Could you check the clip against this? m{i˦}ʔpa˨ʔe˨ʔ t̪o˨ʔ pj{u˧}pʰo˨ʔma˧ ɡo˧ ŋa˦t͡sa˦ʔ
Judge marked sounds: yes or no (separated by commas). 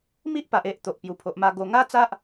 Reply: yes, no